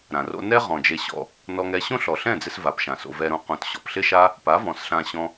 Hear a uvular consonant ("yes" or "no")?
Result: yes